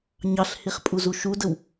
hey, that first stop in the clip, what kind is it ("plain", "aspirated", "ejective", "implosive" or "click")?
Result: ejective